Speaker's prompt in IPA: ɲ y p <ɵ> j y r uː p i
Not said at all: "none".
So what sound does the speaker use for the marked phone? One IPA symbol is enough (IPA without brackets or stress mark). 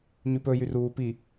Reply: ɵ